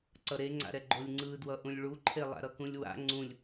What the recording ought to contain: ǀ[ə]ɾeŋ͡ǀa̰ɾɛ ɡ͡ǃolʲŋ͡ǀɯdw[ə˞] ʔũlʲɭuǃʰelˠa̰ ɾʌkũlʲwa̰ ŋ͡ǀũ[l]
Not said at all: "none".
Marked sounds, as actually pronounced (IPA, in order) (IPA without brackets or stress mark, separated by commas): ʌ, ʌ, lʲ